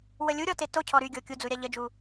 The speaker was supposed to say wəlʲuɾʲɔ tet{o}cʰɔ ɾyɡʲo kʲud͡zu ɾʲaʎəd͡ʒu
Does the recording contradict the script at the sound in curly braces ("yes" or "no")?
no